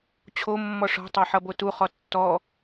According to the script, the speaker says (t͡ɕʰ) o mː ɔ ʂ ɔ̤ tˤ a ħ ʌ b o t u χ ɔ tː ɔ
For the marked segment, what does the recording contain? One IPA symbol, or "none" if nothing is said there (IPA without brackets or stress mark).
t͡ɕʰ